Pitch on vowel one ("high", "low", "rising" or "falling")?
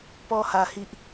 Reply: high